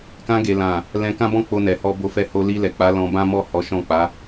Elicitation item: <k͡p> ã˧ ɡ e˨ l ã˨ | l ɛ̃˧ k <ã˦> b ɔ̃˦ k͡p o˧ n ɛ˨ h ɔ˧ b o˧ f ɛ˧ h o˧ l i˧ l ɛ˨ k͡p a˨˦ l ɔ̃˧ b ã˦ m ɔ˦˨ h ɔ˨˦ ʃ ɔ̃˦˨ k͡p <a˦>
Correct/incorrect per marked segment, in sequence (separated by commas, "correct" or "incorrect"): incorrect, correct, incorrect